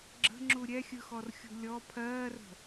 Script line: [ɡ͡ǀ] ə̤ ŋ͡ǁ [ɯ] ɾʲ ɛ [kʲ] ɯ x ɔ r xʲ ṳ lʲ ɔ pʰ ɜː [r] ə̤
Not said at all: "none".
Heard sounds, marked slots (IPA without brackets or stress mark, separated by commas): ɡ͡ǁ, u, xʲ, r